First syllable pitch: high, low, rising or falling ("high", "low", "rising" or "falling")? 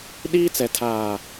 high